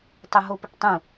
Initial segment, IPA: tˤ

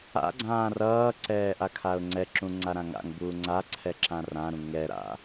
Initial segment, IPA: a̰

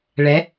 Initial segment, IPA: ɭ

